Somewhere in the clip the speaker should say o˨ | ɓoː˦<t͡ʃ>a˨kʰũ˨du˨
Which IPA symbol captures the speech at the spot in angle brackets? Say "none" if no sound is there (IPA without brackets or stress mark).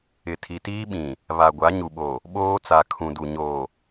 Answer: t͡s